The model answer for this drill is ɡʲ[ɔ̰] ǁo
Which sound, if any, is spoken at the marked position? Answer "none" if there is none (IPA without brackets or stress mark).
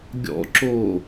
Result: ɔ̰